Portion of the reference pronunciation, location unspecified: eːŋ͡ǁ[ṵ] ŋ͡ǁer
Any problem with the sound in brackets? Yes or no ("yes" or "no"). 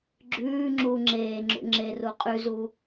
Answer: no